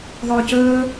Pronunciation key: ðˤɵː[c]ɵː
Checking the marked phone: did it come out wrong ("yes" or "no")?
no